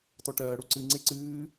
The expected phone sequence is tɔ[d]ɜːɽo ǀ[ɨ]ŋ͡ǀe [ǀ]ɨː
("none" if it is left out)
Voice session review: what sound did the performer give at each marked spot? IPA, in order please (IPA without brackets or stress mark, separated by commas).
ʈ, ɨ, ǀ